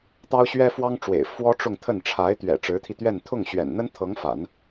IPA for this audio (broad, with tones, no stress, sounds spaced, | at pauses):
t̪ ɑ˥ ʊ̯ ɕ ɥ ɛ˥ f w ɑ˥ ŋ ʈ͡ʂ w ḛ˨˩ ɪ̯ f w ɔ˥ ʈ͡ʂ ʊ˥˧ ŋ t̪ʰ ə˥˩ n ʈ͡ʂʰ a˧˥ ɪ̯ t̪ ɥ ɛ̰˨˩ ʈ͡ʂ ɻ̩˧˥ t̪ʰ i˧ t̪ ɥ ɛ˥˧ n t̪ʰ ʊ˥˩ ŋ ɕ ɥ ɛ̰˨˩ n n̪ ə˥ n t̪ʰ ɤ˧˥ ŋ f a̰˨˩˦ n